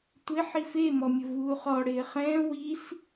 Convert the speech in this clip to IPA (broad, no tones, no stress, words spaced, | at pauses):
tʷɪ ħife mɔmʲʊvuːχɔ ɽɪːχɛ̃ː wis